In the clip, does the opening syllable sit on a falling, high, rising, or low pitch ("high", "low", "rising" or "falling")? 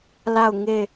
falling